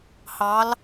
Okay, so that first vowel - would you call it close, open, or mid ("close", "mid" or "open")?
open